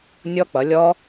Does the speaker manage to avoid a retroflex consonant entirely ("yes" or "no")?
yes